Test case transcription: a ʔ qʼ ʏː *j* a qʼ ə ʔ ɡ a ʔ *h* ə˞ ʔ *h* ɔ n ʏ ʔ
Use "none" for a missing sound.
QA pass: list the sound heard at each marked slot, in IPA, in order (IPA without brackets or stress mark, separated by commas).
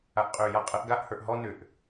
j, h, ɦ